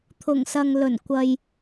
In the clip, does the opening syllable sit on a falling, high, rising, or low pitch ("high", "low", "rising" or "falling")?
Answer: low